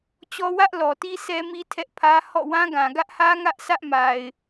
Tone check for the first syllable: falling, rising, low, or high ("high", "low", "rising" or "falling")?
high